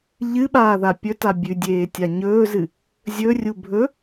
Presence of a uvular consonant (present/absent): absent